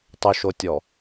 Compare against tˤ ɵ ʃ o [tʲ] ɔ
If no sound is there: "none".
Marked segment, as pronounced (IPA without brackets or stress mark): tʲ